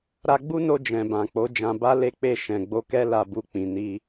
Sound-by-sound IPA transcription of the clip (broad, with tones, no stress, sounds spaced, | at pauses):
ɾ a˧ ɡ͡b u˦ n o˧ d͡ʒ ɛ̃˨ b ã˨ k͡p o˨˦ d͡ʒ ã˧ b a˦ l e˦ k͡p e˦˨ ʃ ɛ̃˨ ɡ͡b o˧ k ɛ˦ l a˦˨ b u˧ k͡p ĩ˨ n i˧